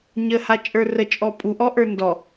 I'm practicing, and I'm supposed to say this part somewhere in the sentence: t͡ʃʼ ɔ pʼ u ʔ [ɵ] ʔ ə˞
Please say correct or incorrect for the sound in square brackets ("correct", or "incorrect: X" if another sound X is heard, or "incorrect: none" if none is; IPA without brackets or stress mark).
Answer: incorrect: ɔ